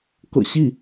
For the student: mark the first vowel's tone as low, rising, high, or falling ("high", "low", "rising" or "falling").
low